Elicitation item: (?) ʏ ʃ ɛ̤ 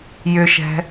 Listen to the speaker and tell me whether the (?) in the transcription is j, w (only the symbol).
j